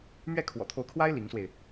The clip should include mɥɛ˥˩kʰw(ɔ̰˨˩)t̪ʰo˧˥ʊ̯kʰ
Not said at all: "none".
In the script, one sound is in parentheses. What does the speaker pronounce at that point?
ɔ̰˨˩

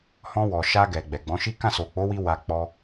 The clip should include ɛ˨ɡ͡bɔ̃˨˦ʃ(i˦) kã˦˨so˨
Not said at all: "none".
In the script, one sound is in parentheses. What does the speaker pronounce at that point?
i˦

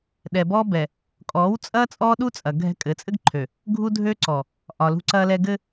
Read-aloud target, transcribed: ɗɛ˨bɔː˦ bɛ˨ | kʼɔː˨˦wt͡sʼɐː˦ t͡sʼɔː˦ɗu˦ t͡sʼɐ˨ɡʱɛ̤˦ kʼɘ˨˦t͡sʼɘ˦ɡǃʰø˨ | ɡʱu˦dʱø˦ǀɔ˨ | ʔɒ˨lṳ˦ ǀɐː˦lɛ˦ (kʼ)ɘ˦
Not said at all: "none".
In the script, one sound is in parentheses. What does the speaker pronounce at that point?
ɡ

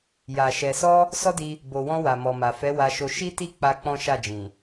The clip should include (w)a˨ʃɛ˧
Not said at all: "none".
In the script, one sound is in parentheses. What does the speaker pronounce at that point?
j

